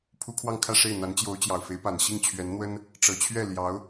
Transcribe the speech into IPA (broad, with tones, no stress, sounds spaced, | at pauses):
pʰ u˥ kʰ w ɑ˥˧ ŋ kʰ ä˥˧ ʂ e˥˩ ɪ̯ n̪ a˧˥ n t͡ɕ j o˧˥ ʊ̯ t͡ɕ j ɑ˨˩ ʊ̯ f e˧˥ ɪ̯ p a˨˩ n ɕ i˥˩ ŋ t͡ɕʰ ɥ ɛ˧˥ n n̪ w ə˥ n | ʈ͡ʂ ɤ˨˩ t͡ɕʰ ɥ ɛ˥˩ l j ɑ˧˥ ʊ̯